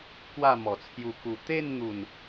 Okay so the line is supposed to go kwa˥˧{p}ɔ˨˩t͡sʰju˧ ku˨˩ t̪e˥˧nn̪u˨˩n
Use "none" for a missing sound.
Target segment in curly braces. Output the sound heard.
m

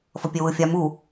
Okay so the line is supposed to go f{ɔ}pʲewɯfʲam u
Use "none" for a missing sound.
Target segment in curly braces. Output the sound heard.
ʌ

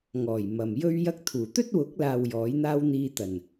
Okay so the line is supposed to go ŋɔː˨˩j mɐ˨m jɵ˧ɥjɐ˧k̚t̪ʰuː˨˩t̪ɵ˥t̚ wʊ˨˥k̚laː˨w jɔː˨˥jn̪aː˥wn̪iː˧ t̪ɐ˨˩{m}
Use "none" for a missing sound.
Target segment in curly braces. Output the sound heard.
n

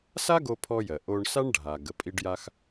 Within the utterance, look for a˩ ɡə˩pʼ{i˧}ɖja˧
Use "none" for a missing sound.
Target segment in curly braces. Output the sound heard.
i˧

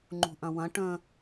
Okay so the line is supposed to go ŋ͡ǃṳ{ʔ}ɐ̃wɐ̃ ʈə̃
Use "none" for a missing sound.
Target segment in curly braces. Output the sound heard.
ʔ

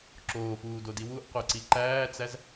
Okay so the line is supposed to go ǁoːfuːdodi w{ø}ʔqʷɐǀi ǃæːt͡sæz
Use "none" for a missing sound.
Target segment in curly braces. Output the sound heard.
u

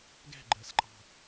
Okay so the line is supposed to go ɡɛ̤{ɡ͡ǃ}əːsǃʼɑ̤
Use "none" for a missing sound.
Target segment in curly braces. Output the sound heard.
ɡ͡ǃ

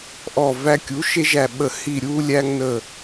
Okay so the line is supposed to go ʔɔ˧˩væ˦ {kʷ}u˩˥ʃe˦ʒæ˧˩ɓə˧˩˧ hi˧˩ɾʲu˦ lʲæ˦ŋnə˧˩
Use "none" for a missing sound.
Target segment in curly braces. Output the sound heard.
kʲ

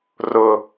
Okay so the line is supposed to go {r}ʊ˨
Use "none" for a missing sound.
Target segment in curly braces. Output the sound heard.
r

